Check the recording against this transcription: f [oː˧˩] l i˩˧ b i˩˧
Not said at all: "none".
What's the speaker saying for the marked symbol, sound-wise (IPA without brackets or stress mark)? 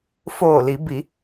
oː˧˩